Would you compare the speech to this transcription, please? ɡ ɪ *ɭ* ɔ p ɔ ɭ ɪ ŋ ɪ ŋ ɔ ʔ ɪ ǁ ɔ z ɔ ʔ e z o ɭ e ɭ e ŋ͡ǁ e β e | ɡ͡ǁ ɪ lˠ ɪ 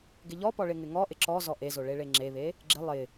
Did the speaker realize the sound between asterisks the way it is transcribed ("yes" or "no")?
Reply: no